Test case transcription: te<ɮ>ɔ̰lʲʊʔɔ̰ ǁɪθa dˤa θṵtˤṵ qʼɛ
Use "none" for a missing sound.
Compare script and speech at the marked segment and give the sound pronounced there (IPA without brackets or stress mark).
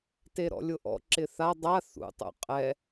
ɾ